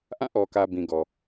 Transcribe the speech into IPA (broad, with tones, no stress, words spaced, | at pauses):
ʔã˦˨ʔɔ˨kä˨ bĩ˨ɡɔ˨